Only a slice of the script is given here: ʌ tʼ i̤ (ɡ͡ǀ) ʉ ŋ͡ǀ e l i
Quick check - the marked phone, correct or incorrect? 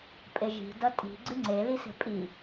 correct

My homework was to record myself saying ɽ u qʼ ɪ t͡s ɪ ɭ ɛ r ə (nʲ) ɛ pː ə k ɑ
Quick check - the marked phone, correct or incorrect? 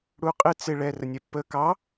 correct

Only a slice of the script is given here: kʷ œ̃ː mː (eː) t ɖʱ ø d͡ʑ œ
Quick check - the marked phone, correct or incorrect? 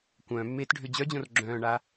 correct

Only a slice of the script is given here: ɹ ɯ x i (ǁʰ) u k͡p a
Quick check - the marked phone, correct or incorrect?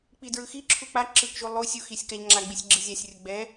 correct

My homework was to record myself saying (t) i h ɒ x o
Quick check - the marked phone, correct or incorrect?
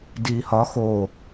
incorrect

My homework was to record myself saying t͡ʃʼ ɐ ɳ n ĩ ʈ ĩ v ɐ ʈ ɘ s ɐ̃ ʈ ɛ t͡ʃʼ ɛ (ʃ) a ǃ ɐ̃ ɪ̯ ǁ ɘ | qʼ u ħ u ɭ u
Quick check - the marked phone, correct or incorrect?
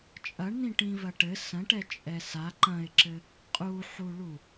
incorrect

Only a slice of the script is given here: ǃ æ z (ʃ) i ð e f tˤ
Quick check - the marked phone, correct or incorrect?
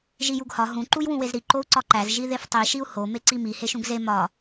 incorrect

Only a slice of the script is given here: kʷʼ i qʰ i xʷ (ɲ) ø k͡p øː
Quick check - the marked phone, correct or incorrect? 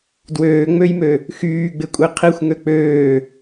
incorrect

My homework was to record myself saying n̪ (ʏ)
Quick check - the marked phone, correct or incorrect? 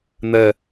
incorrect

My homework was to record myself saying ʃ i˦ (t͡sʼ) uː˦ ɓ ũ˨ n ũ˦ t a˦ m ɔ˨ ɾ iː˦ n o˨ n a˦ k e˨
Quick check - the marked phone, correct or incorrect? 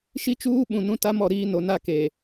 incorrect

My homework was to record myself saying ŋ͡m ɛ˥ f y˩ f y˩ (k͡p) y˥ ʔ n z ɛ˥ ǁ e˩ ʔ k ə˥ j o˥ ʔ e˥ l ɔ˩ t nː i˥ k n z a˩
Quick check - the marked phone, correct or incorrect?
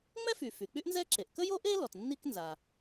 correct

